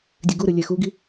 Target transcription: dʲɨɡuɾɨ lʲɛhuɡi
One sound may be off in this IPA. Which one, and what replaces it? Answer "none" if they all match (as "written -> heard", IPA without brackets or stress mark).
h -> x